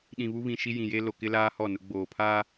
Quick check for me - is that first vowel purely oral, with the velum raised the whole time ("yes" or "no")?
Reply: no